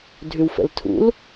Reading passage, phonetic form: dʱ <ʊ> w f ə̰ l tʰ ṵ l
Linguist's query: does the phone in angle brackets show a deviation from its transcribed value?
yes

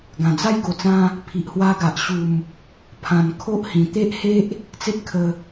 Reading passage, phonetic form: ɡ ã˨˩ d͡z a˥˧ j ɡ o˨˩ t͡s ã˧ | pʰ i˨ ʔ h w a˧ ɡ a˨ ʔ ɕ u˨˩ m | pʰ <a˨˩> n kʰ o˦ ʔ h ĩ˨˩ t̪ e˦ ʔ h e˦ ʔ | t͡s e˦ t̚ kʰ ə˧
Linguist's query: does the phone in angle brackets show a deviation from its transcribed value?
yes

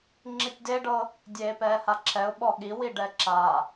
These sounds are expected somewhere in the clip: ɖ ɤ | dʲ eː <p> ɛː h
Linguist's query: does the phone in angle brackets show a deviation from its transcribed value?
no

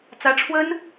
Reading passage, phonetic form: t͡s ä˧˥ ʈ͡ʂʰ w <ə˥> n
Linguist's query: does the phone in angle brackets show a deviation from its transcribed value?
no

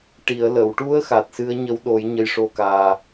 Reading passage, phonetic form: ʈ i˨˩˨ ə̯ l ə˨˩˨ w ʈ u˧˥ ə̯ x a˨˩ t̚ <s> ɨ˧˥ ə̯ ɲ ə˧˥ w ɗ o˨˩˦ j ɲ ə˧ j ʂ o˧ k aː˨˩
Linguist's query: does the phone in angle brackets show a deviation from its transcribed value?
no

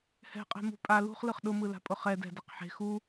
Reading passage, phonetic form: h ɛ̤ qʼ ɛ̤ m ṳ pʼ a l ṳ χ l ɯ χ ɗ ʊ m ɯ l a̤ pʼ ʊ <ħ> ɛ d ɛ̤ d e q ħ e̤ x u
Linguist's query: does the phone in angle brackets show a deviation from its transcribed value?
yes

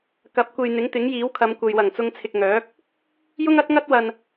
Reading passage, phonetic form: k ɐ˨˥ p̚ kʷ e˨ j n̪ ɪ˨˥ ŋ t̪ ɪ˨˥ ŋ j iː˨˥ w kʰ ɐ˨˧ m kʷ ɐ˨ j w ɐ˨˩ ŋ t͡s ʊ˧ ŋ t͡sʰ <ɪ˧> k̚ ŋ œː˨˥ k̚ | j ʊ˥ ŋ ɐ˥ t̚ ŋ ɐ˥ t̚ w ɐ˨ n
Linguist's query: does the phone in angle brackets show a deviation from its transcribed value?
yes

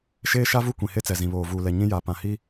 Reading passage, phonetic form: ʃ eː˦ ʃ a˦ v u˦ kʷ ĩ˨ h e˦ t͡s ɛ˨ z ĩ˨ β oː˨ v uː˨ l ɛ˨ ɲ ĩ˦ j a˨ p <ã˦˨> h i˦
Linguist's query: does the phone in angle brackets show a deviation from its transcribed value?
yes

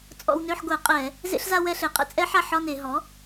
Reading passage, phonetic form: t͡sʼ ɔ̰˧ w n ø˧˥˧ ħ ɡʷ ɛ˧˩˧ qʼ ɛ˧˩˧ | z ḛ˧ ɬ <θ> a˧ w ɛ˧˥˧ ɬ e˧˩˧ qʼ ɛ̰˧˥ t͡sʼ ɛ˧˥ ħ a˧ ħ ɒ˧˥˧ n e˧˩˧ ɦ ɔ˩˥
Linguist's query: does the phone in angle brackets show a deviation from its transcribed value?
yes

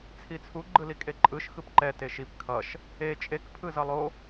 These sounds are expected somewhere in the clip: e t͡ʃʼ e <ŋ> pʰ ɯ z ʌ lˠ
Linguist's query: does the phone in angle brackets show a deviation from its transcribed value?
yes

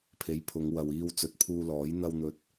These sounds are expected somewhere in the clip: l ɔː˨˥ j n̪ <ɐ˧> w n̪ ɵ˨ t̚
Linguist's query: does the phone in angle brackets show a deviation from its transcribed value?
no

